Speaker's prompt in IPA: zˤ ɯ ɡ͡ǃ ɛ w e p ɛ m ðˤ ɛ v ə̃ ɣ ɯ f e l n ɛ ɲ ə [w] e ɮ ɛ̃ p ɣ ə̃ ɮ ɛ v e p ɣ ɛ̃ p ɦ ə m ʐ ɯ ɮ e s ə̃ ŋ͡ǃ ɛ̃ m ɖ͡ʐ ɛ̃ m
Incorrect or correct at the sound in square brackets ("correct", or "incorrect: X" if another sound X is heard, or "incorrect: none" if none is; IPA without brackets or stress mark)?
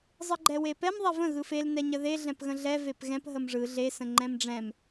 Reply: incorrect: ð